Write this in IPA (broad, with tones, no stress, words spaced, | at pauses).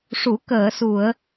ʂu˨˩˦ kəː˨˩˨su˨˩˨ə̯